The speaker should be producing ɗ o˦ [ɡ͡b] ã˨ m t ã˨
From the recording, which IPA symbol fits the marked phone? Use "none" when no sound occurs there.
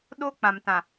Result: k͡p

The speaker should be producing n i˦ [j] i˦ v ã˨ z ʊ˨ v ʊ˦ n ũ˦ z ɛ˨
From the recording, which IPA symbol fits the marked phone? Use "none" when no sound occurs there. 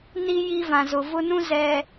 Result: j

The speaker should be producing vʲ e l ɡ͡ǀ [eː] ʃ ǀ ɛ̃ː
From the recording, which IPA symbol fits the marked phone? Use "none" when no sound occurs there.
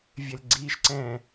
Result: iː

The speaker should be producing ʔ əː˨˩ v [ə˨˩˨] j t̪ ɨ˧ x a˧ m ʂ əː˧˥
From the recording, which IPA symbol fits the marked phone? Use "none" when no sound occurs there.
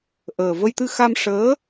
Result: ə˧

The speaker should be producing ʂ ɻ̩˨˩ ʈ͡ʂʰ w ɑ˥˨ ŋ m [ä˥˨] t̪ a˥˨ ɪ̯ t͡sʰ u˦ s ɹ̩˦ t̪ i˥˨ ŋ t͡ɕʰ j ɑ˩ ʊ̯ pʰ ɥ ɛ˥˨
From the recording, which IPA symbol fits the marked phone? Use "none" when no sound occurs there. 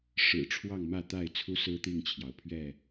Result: ä˥˨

